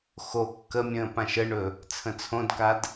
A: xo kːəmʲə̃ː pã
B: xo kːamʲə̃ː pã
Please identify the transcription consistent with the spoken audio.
A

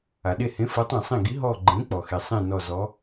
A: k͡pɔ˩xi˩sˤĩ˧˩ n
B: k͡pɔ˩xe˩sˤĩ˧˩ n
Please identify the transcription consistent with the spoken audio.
B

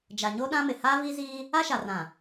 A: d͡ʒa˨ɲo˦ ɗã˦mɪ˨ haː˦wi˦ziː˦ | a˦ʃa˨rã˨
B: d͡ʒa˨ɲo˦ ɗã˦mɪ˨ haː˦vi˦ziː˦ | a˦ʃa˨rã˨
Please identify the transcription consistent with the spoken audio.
B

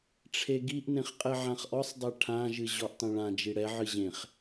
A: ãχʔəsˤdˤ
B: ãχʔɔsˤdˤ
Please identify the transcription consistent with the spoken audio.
B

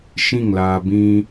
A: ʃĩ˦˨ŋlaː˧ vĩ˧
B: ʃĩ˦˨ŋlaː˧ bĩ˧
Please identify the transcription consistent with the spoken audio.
B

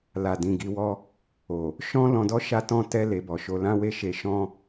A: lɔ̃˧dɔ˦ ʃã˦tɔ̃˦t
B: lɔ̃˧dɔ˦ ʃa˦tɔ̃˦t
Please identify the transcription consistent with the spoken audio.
B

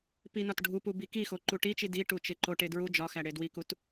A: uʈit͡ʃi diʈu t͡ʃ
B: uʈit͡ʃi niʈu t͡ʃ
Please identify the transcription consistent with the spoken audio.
A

